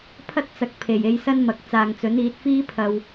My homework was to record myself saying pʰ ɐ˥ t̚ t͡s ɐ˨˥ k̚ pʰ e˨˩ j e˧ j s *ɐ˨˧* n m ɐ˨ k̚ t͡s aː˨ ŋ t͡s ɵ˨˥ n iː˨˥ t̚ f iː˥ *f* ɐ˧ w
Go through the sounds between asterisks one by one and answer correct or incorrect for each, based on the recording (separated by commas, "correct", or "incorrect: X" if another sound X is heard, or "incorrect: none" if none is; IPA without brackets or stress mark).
incorrect: ɐ˥, incorrect: pʰ